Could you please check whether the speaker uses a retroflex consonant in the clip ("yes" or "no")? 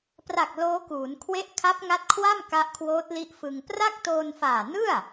no